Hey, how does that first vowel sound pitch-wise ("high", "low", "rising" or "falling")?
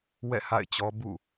falling